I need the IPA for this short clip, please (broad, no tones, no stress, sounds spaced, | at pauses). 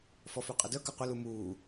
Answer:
f ɔ f y qʼ ə d œ k ə qʷ ə l u m uː